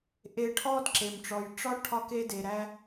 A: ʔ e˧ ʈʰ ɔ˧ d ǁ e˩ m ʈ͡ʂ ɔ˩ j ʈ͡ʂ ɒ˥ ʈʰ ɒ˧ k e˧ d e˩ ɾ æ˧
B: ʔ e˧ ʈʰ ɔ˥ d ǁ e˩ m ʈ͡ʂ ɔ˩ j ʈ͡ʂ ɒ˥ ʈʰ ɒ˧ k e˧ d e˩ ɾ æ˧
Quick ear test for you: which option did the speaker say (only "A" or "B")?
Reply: B